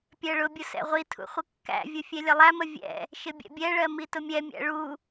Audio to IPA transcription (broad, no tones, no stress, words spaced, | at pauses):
pʲɜɭʊbʲʊ sɛ̰ʁʷitʰṵ χʷəkːæ̰vʲʊ fʲɛlʲəlˠæmə vʲɛ̰ | ʃɪbʲɛ̰bʲɛɭɜ mitʊmʲɛmʲæ̰ ɭu